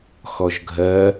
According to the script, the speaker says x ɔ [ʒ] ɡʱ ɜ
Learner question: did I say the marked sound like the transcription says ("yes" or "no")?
yes